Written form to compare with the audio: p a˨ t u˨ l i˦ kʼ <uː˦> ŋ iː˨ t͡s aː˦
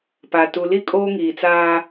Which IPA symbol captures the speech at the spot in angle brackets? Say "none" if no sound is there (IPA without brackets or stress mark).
oː˦